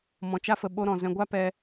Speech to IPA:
m ɔ̃˧ t͡ʃ a˦ f ə˧ ɓ o˦ ɾ ɔ̃˧ z ɛ̃˧ ɡʷ a˦ p ɛ˧

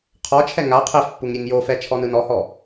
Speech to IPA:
qʰ ɔ t͡ʃʰ ɛ ŋ a qʰ ɛ f pː u ŋ ɾʲ e ŋ j o f ɛ t͡ʃʰ ɔ n ɯ n ɔ h ɔ

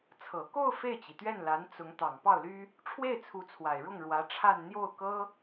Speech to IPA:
t͡sʰ ɤ˨˩ k o˥˧ ʊ̯ f e˥˩ ɪ̯ t͡ɕ i˩ t̪ ɥ ɛ˥˩ n l a˧˥ n t͡s ʊ˧˥ ŋ t̪ ɑ˨˩ ŋ p ɑ˥˩ ʊ̯ l y˥ | ʈ͡ʂʰ w e˥˩ ɪ̯ t͡sʰ u˧˥ t͡sʰ w a˨˩ ɪ̯ ɻ ʊ˥˩ ŋ ɻ w ä˧˥ ʈ͡ʂʰ a˥˧ n n̪ j o˥˩ ʊ̯ k ɤ˥

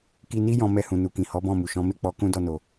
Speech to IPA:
k i˧ n i˦ j ɔ̃˧ m ɛ˧ h ũ˨ n u˨ k ĩ˨ h ɔ˨˦ b ɔ̃˦˨ m u˨ ʃ ɔ̃˨˦ m e˦˨ k͡p ɔ˧ k ũ˦ d ɔ˧ n o˨

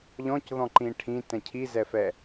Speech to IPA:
ʎ ɔ̃ c ð ɔ̃ ǃ ĩ ʈʰ ĩ t ɛ̃ cʰ i z ɛ f ɛ

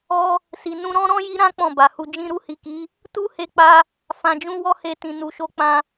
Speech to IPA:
ɔ˧ | s i˨ n ũ˧ ɾ ɔ̃˦ ɾ ɔ̃˦ j i˦ ɾ ã˦ k͡p ɔ̃˦˨ b a˨ h u˧ d͡ʒ ĩ˧ ɾ u˧ h i˨ k i˨˦ | t u˦ h e˧ k͡p a˧ | f ã˨ d͡ʒ ũ˧ w ɔ˦ h e˧ t ĩ˨ n u˨ ʃ o˧ k͡p ã˧

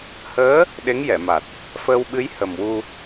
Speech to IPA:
h əː˧˥ | ɗ e˧˥ ŋ j ɛ˨˩˨ m a˨˩ t̚ | f əː˧ w ɓ ɨ˧˥ j h ə˨˩ m w u˧

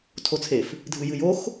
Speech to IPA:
tʰ o t͡sʰ e f | dʱ ɨ j ɨ j o x

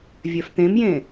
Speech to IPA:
vʲ œ f t̪ ẽ m j ẽ

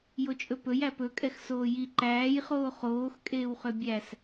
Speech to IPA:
j o t͡ʃʼ ɵ p ɵ j æ p ɵ kʼ ɛ x s oː j i ǃ æː j χ oː χ oː x kʼ eː w χ ø bʲ æ s

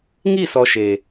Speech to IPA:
ŋ i˦˨ s ɔ˨ ʃ e˨

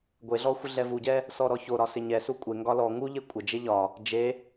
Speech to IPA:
ɡʷ e ɮ ɔ xʷ ɪ ɮ ɛ v u ɟ ɛ | s ɔ ɾ ɔ ç o ɾ ɒ s ɪ ɲ ɛ s u kʷʼ e ŋ ɡ ɒ l ɔ ŋ u ʎ e kʷʼ ɪ d͡ʒ e ʎ ɒ | d͡ʒ e

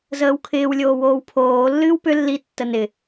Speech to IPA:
z əː w kʰ ɪː w lʲ oː w oː w pʰ oː lː ɨː w p ʏ lː i tː ə n ɪ

